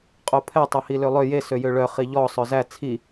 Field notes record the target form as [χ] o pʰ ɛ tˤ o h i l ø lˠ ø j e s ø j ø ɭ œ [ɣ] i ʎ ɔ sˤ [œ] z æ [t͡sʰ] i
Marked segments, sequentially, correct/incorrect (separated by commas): incorrect, incorrect, correct, correct